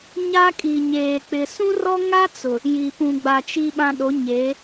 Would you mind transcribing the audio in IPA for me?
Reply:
ɲ a˦ kʼ i˨ ɲ eː˨ k͡p ɪ˨ s ũ˦ r ɔ˦ ŋ a˦ t͡s ʊ˨ | j i˨ p ũ˨ ɡ͡b a˨ t͡ʃ i˦ ɓ ã˦ ɗ o˨˦ ɲ e˨˦

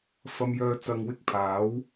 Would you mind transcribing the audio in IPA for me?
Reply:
f ɐ˥ m j œː˥ t͡s ɐ˧ ŋ w ɪ˥ k̚ pʰ aː˨˥ w

